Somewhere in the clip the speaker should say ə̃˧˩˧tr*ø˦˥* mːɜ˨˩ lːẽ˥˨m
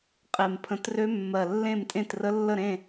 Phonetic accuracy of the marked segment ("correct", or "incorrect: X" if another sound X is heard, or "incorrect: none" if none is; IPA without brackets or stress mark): correct